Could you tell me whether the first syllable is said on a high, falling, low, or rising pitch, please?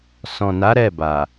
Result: low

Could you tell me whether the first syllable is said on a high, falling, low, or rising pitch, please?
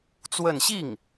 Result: falling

